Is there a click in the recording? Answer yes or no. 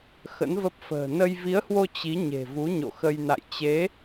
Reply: no